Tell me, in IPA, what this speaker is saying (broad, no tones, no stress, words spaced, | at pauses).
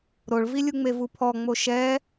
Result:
ɾoɭvi lʲuŋ͡mevupʰɔ ŋ͡moʃɛ